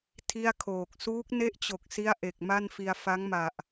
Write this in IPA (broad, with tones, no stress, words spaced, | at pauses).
tʰi˥˩a̯kʰoː˨˩k̚ suː˦˥k̚ne˥˩ʔt͡ɕo˨˩k̚si˦˥a̯ ʔe˨˩k̚ma˥˩nfi˧a̯ fa˦˥ŋma˨˩ʔ